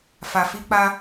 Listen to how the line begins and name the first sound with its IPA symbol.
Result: f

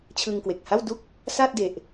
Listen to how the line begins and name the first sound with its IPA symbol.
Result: t͡ɕʰ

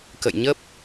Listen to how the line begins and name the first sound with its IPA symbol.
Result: k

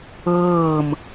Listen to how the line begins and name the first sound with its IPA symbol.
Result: ɤː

